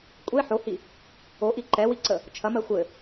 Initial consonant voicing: voiceless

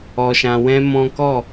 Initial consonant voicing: voiceless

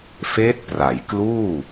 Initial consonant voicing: voiceless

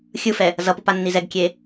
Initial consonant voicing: voiceless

